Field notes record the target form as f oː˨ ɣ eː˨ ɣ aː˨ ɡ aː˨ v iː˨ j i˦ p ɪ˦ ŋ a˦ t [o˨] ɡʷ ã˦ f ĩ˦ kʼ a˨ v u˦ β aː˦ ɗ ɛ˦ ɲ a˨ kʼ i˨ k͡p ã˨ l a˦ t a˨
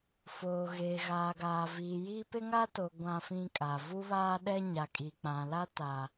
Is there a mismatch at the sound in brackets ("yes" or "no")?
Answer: no